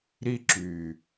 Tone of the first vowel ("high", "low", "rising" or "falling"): high